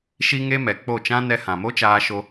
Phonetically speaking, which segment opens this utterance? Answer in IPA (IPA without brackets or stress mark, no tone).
ʃ